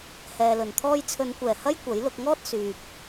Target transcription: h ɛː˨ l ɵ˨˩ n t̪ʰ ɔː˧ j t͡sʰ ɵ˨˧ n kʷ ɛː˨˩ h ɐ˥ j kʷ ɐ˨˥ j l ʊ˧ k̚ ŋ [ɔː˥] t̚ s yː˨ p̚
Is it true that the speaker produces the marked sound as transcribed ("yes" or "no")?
yes